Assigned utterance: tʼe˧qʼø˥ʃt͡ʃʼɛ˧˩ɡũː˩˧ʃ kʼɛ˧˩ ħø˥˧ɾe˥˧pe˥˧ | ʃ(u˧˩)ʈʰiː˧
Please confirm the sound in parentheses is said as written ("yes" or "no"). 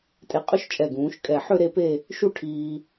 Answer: no